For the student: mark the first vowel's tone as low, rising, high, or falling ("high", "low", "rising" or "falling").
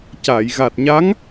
low